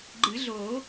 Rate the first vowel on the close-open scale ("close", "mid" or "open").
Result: close